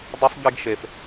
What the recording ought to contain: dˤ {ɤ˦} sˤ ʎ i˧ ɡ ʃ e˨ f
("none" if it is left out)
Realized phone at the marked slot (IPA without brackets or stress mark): ɵ˦